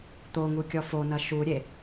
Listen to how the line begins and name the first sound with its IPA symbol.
t̪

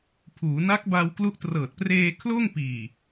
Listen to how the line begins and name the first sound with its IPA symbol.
pʰ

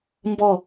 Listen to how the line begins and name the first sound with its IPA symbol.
m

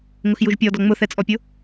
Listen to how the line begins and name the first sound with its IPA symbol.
ŋ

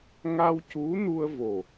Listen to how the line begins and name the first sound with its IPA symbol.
ŋ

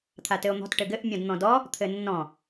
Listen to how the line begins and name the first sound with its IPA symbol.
t̪ʰ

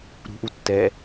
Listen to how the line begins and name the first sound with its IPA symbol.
ɾ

